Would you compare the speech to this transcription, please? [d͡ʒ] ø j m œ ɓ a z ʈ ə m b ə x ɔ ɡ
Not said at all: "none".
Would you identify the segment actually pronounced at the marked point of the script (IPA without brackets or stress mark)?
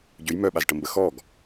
ɟ